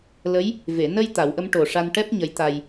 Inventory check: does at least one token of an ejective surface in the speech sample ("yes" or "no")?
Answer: no